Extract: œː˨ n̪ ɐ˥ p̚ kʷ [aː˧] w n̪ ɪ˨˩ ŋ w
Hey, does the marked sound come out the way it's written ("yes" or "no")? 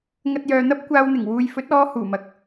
yes